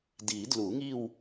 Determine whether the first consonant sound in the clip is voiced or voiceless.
voiced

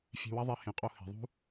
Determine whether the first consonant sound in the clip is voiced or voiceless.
voiceless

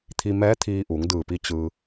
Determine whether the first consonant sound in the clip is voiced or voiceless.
voiceless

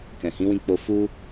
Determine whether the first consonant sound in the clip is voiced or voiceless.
voiceless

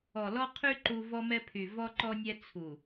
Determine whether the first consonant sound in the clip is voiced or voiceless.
voiced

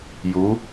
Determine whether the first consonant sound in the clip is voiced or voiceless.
voiced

